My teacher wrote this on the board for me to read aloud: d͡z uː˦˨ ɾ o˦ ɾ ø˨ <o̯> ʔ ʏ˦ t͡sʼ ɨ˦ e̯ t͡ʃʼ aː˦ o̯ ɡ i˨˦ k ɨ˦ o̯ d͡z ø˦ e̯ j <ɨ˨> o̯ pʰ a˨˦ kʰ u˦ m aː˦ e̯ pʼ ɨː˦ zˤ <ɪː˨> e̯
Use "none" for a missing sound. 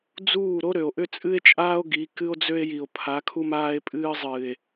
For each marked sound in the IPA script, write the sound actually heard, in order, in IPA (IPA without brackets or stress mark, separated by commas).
o̯, i˨, ɨː˨